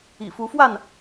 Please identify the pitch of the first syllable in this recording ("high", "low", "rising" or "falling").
low